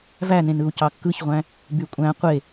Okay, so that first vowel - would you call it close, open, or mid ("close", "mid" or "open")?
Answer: open